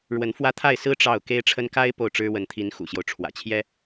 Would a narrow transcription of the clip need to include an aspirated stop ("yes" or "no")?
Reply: yes